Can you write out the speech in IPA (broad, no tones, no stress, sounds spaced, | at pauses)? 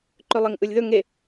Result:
ǃ ø lˠ e ŋ ʔ ɯ lʲ ð ɵ ŋ e